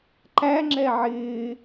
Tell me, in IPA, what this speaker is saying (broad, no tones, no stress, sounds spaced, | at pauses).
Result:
ǃ æ ŋ͡ǁ ɛ ʕ ɪː